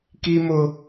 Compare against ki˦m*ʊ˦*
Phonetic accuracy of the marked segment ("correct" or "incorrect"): correct